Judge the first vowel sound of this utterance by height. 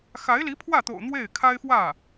low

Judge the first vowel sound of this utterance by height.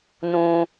high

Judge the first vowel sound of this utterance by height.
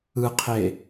high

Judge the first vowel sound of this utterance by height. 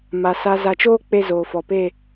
low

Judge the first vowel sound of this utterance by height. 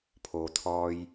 mid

